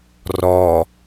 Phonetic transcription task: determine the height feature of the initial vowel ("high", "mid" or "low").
mid